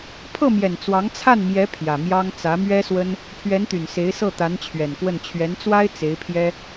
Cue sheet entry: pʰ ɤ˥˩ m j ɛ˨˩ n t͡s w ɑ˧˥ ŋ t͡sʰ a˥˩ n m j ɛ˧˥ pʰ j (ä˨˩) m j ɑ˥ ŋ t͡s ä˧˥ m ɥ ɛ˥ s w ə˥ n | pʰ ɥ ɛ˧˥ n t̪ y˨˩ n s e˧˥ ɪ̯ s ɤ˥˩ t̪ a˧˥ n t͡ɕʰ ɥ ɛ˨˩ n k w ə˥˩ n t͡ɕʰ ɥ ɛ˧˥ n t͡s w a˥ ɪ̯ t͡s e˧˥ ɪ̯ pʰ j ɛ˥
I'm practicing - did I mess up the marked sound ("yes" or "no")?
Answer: no